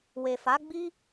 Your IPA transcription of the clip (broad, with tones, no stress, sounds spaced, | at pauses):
w e˨ f a˨˦ ɡ͡b i˦